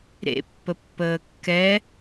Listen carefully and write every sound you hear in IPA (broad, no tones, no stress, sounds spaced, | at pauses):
ɾ ḛ pː ə pː əː kː ɛ